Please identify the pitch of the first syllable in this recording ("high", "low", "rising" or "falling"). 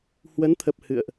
rising